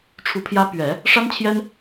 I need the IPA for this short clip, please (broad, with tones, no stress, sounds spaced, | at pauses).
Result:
ʈ͡ʂʰ u˨˩ pʰ j ä˧˥ p ɥ ɛ˨˩˦ | ʂ a˥ n t͡ɕʰ j ɛ˥ n